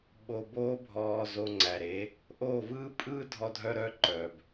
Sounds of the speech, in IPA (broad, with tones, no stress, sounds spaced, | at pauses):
ɓ o˧ b oː˦ bʱ ɔː˧ z o˧ ŋ͡ǀ æ˨ ɾ e˨˦ | ʔ o˦˨ v ɯː˦ pʼ ɯː˦ dʱ ɔ˧ dʱ œ˧ ɾ œ˦ ǃ œ˨ b